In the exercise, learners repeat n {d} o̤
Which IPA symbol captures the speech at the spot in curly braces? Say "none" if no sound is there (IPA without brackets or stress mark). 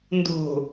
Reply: d